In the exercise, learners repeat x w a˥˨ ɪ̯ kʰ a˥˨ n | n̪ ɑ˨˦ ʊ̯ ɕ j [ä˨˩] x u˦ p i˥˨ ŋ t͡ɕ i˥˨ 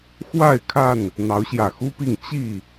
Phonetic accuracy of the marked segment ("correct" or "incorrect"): correct